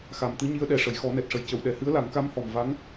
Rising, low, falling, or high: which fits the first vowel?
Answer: low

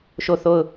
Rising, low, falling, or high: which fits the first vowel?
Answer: falling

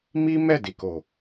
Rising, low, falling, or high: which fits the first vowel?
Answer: high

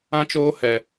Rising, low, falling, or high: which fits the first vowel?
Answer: high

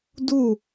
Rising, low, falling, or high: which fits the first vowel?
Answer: falling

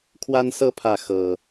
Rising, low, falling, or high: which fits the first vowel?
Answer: high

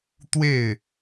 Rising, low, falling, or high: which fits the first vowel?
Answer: falling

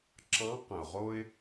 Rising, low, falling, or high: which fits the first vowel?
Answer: rising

